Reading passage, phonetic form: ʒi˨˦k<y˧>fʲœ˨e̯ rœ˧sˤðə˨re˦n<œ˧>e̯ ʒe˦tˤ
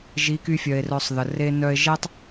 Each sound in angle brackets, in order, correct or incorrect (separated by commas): correct, incorrect